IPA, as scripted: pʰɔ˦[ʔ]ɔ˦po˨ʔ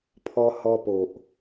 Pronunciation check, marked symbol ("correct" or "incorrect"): incorrect